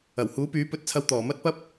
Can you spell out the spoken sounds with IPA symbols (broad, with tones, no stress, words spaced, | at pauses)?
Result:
ɐ˨˩whuː˨˥pyː˨˥ pɵ˧t̚t͡sʰɐ˧w t̪ɔː˨˩ mɐ˥t̚pɐ˥p̚